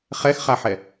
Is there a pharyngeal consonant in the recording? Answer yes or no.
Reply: yes